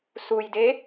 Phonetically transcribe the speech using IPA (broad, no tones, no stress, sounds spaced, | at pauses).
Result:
s u j d e